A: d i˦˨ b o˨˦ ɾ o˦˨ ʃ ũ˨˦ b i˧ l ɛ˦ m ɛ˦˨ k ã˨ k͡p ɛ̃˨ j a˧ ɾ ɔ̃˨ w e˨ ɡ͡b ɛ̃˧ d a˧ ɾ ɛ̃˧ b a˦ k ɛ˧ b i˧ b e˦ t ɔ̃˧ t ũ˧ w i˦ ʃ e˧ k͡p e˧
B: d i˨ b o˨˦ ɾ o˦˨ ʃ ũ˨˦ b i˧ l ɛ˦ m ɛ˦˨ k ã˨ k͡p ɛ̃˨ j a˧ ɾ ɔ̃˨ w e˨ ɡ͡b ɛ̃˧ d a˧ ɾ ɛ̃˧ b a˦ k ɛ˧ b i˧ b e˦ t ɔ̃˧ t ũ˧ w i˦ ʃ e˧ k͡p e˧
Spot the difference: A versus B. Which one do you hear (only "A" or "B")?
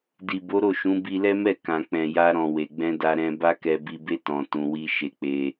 B